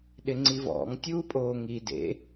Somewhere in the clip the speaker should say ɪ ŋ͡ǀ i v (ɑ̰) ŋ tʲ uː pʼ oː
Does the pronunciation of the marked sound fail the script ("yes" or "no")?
yes